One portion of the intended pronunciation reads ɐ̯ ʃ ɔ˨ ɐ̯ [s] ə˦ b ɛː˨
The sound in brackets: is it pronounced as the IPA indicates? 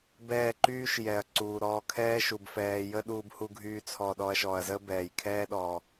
no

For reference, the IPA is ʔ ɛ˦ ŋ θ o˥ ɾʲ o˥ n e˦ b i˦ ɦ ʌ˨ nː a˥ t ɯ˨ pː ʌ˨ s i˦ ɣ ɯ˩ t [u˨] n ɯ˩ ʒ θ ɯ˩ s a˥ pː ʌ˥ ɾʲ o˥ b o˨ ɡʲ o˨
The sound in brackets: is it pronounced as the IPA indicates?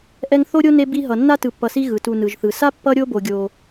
yes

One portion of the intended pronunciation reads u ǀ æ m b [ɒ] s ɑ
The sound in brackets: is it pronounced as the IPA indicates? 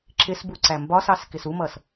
yes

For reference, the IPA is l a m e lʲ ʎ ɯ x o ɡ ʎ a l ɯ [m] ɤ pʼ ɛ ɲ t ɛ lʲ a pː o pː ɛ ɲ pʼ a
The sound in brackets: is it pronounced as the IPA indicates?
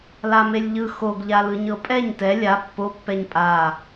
no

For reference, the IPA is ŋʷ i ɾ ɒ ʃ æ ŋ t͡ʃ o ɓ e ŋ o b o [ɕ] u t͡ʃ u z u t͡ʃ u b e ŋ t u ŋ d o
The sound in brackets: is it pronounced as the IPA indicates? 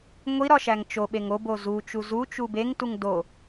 no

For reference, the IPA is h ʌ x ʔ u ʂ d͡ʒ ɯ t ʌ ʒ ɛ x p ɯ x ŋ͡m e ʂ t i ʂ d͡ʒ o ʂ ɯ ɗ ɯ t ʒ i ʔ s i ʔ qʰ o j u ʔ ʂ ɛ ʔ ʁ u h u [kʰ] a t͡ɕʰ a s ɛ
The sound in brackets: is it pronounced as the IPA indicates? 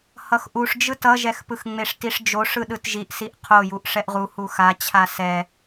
no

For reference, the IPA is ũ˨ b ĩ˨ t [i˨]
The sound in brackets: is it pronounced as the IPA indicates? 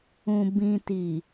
yes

